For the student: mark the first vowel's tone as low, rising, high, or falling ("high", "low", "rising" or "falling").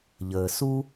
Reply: low